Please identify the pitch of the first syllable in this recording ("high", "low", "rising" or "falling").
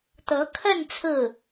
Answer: rising